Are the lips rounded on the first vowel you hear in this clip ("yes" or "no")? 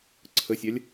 no